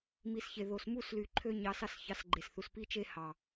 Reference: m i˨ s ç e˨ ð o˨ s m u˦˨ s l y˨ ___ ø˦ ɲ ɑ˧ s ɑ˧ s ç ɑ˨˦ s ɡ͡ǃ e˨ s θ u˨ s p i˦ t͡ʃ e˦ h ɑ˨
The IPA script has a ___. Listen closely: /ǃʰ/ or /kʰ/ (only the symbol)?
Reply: ǃʰ